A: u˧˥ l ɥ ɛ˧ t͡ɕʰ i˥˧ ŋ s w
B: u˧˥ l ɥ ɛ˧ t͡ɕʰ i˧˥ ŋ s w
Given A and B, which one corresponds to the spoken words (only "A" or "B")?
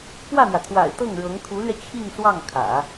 A